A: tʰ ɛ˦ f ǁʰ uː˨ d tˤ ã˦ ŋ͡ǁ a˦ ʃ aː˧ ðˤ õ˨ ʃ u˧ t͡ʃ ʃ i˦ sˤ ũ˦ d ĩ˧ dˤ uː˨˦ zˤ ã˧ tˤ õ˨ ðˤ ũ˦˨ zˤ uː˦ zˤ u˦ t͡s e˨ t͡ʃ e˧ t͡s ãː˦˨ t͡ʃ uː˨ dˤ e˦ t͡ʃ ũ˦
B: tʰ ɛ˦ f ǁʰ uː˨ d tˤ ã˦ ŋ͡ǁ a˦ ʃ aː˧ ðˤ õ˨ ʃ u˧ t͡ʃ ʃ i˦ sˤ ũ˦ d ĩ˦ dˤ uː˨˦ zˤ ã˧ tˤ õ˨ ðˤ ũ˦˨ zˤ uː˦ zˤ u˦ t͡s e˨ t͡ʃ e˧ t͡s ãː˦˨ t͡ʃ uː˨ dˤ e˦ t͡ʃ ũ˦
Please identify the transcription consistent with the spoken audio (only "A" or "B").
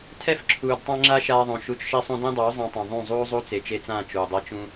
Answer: B